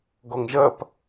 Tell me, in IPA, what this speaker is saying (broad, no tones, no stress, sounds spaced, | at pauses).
ɡ ɔ ŋ ʒ ɐ p